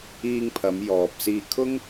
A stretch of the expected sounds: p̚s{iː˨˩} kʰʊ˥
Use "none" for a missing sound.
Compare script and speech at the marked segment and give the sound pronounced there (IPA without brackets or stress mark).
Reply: iː˧